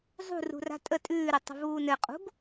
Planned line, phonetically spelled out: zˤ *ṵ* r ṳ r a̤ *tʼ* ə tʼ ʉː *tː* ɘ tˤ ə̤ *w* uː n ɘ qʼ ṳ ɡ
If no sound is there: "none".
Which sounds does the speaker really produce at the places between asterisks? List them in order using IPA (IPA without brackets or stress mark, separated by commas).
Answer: ṳ, tʼ, ɾ, v